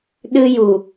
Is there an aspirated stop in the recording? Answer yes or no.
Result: no